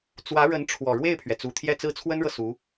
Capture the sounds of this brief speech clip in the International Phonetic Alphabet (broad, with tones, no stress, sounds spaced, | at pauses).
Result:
t͡s w ä˧˥ ɻ ə˧˥ n ʈ͡ʂʰ w ɔ˨˩ ɻ w e˥˩ ɪ̯ pʰ ɥ ɛ˩ t͡s u˨˩ t̪ʰ j ɛ˥˧ t͡s ɹ̩˥˩ t͡sʰ w ə˥ n ɻ ɤ˨ s u˧˥